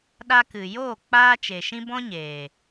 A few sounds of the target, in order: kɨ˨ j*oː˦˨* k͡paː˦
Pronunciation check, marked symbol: correct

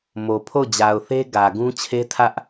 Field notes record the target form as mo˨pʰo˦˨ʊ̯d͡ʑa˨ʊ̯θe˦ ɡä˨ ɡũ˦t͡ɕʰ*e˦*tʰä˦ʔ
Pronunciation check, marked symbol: correct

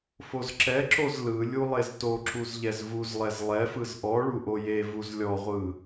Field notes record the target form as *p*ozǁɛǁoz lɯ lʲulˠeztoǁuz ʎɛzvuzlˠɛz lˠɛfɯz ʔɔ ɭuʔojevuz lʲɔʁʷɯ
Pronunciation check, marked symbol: incorrect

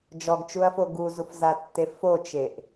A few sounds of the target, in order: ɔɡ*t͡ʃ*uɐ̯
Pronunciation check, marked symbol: correct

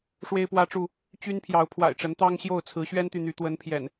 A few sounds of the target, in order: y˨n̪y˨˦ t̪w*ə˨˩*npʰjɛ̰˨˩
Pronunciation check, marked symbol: incorrect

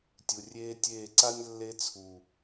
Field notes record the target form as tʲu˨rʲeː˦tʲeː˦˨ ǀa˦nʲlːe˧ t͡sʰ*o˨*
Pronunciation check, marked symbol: incorrect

